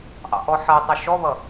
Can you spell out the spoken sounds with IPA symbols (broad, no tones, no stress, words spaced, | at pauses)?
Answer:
ʔɑ̰ʔɔħʌtˤə ʃɔβʌ